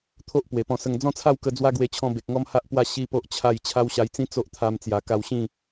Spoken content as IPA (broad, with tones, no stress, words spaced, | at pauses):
t̪ʰo˦ʔpwe˨˩pɔ̃˧sə˧ŋ d͡zɔ̃˥˧t͡sʰa˥˧w kə˧ d͡zwa˦ɡwe˧t͡ɕʰɔ̃˧ be˨k̚ŋɔ˦mha˦ʔpwa˥˧ ɕi˦po˦ʔ t͡ɕʰa˥˧j t͡ɕʰa˦wɕa˧jt͡sĩ˦ t͡so˦ʔt̪ʰa˧mt͡sja˨˩ ka˧wɕĩ˥˧